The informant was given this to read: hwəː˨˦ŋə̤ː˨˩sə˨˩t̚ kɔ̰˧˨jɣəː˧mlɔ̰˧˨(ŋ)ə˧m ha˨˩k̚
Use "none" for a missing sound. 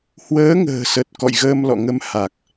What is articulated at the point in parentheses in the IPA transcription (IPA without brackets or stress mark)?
ŋ